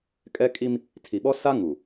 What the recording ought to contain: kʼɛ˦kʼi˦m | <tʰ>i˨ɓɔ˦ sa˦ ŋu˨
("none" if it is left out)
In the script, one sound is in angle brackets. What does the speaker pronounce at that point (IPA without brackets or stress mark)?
tʰ